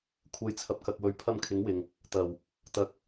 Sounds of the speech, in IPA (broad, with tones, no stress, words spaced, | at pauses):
kʷʰɐ˨˥jt͡sʰɐ˨p̚kɐ˨k̚ wɵ˨ɥ pʰɐ˧mkʰɪ˨˥ŋ wɪ˨ŋ | t̪ɐ˨˩w | t̪ɐ˨˥k̚